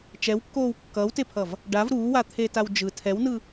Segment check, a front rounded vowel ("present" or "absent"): absent